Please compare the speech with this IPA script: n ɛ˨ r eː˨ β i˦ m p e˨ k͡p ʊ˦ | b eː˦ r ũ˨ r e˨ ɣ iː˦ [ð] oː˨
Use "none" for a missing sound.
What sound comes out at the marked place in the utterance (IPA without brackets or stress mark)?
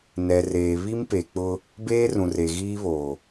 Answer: β